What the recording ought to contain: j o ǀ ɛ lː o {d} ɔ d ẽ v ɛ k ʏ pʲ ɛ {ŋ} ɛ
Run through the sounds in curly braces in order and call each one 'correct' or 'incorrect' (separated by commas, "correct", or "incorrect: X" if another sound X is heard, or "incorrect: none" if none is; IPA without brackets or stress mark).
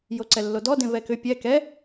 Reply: correct, incorrect: k